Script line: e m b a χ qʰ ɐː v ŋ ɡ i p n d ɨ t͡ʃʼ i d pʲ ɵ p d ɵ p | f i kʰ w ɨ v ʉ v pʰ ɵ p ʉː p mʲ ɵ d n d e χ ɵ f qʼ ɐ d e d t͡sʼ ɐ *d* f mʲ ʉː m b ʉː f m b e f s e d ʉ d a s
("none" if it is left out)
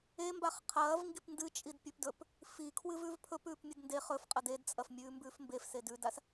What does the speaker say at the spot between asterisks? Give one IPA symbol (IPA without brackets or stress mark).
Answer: none